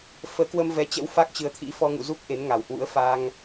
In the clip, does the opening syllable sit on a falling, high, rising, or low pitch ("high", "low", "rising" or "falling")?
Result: rising